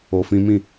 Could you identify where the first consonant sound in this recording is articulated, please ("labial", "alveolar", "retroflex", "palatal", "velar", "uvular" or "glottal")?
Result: labial